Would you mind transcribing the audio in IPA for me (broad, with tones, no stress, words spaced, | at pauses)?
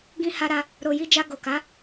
ɡĩ˧ ha˧ɾa˧ | ɾo˨ji˧d͡ʒa˧ ɡo˨ka˨˦